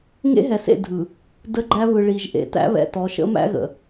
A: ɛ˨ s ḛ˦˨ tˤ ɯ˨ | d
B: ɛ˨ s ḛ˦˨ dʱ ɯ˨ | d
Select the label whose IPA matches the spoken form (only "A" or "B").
B